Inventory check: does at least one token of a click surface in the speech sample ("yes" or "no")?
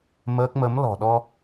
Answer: no